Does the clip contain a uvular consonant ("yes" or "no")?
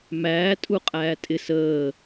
yes